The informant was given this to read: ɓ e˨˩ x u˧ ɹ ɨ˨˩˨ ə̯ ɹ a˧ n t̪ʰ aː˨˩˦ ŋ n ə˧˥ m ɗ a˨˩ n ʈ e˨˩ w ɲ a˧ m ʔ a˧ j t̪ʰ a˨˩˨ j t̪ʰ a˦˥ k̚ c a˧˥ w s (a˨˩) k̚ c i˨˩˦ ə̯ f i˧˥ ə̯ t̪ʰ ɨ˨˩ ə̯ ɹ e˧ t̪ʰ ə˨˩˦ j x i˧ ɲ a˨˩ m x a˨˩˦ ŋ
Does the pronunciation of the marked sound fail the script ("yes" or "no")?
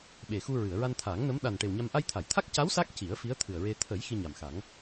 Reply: yes